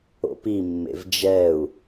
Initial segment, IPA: o̰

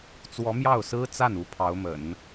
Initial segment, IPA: t͡s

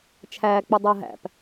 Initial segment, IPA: t͡ʃʰ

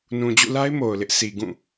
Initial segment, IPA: n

